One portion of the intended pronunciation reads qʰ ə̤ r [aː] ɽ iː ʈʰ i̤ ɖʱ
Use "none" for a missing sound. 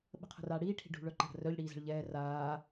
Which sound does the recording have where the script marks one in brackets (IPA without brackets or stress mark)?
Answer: aː